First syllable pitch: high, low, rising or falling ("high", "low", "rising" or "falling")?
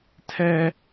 high